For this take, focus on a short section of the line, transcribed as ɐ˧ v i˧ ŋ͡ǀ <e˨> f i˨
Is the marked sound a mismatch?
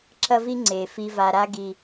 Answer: no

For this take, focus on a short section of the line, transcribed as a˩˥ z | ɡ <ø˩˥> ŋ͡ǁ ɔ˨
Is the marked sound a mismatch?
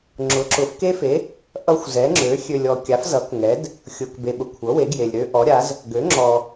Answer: no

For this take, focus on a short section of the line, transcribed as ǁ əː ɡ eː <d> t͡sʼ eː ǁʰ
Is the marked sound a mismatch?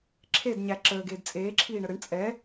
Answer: no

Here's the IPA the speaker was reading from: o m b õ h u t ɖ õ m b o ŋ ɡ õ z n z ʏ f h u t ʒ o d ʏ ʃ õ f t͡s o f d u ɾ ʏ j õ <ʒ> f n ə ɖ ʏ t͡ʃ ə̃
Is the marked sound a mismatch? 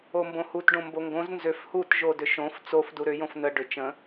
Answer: yes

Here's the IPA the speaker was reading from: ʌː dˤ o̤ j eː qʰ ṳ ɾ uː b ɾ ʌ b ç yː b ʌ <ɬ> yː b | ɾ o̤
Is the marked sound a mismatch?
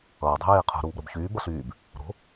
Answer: no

